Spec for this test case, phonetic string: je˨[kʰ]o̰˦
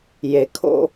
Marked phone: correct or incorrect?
correct